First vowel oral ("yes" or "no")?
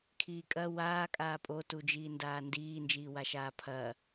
yes